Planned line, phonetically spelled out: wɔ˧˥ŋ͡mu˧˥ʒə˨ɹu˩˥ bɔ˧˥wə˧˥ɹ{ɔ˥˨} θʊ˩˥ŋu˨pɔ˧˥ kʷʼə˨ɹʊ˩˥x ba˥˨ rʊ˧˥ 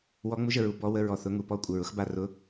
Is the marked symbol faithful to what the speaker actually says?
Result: no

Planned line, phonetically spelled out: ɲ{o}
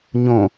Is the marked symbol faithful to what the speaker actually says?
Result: no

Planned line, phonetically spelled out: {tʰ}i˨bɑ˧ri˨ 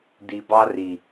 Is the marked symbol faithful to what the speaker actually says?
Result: no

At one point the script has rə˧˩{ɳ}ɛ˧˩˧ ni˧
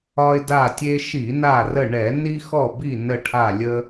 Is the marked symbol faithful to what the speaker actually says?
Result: yes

